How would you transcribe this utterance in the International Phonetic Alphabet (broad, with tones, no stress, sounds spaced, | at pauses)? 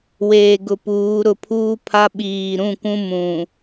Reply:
w eː˨ ɡ ʊ˨ p uː˨˦ ɾ ʊ˨ pʰ uː˦ pʰ a˦ ɓ iː˨ ɾ ũ˦˨ kʷ ũ˦ m ũ˨